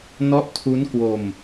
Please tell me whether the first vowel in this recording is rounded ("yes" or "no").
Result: yes